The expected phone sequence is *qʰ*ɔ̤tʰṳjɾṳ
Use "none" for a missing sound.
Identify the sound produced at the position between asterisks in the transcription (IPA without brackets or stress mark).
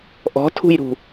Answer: ʔ